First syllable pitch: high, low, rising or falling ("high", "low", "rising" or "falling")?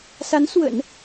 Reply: rising